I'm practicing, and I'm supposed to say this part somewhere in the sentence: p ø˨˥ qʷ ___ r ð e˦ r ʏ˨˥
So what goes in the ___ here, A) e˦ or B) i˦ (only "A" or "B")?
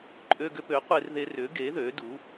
A